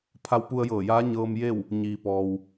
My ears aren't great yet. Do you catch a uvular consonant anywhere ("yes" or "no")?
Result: no